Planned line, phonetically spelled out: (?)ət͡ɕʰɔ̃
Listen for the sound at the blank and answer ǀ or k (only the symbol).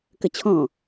k